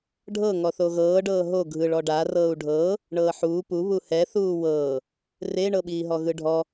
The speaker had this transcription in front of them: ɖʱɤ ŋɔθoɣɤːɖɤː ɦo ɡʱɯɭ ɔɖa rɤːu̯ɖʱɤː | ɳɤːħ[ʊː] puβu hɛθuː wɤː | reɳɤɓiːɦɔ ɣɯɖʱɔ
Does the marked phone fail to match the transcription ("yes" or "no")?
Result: yes